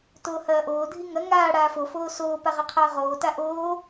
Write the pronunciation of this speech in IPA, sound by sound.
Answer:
t oː h ɐː ʔ oː dʱ i ŋ ɐ ŋ aː ɽ aː f o f oː s oː p a ʁ ɐ qʰ ɐː ʁ oː t a ʔ oː

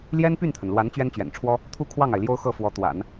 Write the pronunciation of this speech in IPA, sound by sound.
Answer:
l j ɛ˥ n p y˥˩ n t̪ʰ ə˩ n l w a˧˥ n t͡ɕ ɥ ɛ˥ n t͡ɕ ɥ ɛ̰˨˩ n ʈ͡ʂʰ w ɔ˥ | t̪ʰ u˥˧ kʰ w ɑ˥˩ ŋ a˩ ɪ̯ l j o˥ ʊ̯ x ɤ˥˩ f w ɔ˧˥ t̪ w a̰˨˩˦ n

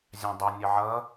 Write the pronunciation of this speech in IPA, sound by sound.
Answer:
zʲ ɑ̃ dˤ ɘ nʲ ə ʕ ʌ

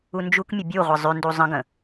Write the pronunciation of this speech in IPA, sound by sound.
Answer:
u n d͡ʒ u k mʲ ə bʲ u ʁʷ ə zˤ ʉ n d u zˤ ə̃ ɡ ə̃

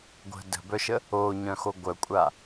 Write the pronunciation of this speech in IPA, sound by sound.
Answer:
ɡʷ ə̤ d ə̤ b œ ʃ ə | o ɲ œ̃ x o ɡʷ œ kʷʼ a

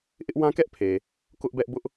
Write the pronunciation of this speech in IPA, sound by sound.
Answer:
ʔ ɪ˦ ʔ w ã˦ k ɛ˦ ʔ pʰ e˨ | k ʊ˦ ʔ b ɛ˦ ʔ b ʊ˦ ʔ

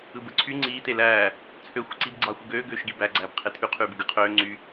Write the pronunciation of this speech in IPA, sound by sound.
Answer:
ɯ b ɯ ǀʰ y ŋ͡ǀ iː t e l æː | t͡sʰ ø xʷ ɯ ǀ i b ɡ͡ǀ ɑ xʷ ɯ ɡ øː ɡ øː ʃ ɡ i b æ ɡ͡ǀ æː b qʰ e tʰ y qʰ yː b ɯ ɡ ɯ qʰ øː ŋ͡ǀ y

